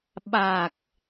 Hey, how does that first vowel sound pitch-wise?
low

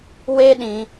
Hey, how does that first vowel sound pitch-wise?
high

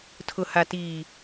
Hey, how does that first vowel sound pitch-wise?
low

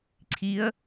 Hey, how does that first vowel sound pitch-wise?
rising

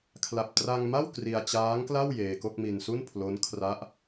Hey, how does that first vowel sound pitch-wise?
low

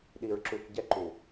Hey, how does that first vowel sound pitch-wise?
low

